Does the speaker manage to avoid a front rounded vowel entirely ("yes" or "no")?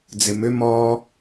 no